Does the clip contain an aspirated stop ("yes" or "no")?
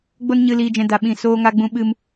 no